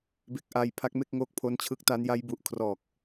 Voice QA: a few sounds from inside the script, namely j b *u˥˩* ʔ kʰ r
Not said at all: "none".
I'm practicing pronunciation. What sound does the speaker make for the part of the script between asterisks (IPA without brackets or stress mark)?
u˨˩